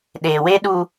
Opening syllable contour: low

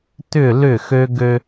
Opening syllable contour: falling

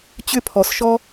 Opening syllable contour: high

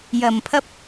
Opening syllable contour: low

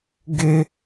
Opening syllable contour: high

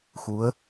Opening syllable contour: rising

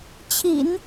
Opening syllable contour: low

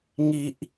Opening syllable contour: low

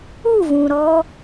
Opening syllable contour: falling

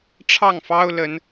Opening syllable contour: falling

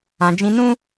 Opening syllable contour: low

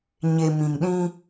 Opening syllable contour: low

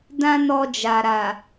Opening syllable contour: high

